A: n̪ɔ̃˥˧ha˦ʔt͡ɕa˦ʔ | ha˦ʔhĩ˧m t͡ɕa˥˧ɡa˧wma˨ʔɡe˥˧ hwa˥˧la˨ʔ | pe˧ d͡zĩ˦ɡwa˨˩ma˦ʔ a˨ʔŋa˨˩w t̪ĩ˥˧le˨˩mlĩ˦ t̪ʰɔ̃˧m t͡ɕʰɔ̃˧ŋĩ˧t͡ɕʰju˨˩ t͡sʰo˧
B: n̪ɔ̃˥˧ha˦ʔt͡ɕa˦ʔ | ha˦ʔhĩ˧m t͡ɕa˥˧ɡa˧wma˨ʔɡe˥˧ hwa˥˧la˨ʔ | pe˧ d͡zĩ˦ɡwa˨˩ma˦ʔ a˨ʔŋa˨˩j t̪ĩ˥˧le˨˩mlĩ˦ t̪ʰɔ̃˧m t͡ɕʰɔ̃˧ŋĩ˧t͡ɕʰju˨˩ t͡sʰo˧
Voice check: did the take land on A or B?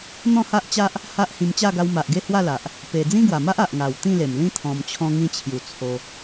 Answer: A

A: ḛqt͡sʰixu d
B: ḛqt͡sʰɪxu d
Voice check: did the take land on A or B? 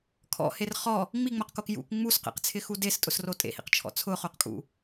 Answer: B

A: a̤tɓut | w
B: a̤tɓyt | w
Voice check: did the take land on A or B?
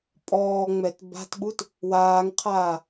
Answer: A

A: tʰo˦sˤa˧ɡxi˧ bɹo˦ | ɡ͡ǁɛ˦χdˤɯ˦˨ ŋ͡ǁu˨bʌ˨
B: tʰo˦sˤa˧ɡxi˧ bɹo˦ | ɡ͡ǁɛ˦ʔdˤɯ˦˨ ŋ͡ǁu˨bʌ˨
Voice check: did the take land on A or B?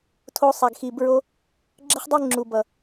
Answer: A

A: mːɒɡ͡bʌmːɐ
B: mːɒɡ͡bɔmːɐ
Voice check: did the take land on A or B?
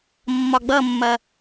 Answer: A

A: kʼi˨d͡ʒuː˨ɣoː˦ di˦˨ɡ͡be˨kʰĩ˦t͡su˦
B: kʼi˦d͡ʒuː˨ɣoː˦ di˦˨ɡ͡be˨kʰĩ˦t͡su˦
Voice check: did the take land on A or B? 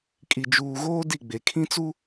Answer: A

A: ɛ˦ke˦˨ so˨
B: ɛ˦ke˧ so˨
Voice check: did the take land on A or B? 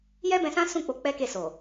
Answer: A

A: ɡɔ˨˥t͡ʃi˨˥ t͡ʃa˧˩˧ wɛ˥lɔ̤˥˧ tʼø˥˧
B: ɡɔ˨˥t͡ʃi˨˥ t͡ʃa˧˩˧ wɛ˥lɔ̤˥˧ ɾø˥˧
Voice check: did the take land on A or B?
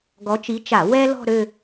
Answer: B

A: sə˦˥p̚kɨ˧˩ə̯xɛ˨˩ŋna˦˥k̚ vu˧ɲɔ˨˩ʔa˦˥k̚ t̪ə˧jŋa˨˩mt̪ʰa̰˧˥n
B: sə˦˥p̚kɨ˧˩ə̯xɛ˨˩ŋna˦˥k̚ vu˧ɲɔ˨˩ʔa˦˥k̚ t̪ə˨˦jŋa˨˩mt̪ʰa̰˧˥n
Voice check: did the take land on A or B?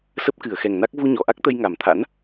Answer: A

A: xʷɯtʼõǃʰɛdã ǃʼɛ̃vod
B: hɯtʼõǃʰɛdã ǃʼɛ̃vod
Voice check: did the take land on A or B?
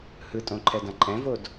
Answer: B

